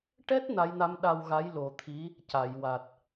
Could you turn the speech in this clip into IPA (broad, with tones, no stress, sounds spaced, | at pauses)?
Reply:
ʈ ɛ˦˥ t̚ n a˧˥ j n a˧˥ m ɗ a˧ w ɣ a˧˥ j l o˨˩ t̪ʰ i˧˥ | c a˨˩˨ j w a˨˩ t̚